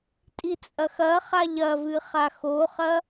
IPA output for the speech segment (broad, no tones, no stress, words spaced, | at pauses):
tʼit͡sʼɐxɐχaʎ ɐvɨ χaxoχɐ